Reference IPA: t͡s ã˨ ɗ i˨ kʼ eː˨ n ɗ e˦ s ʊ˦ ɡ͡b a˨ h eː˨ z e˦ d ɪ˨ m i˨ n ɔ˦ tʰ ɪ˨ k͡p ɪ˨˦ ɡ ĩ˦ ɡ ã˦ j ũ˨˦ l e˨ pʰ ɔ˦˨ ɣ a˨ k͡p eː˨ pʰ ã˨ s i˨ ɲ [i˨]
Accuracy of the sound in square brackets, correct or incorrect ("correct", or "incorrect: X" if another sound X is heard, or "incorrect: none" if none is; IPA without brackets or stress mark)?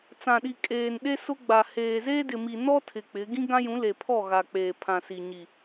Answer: correct